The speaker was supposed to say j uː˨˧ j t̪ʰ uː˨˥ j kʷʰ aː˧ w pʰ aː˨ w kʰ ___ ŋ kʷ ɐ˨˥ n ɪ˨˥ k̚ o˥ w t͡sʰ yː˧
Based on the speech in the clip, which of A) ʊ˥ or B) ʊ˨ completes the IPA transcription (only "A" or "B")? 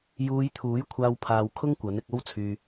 A